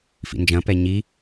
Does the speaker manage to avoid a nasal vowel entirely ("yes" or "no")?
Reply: no